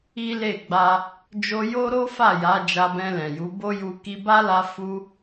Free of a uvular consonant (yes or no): yes